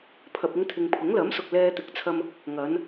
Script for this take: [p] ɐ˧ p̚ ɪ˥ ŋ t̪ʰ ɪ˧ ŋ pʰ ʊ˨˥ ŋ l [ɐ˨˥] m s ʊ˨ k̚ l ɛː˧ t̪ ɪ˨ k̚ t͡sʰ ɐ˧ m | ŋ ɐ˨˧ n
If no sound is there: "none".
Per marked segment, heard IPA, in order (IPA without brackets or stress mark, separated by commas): pʰ, ɐ˨˥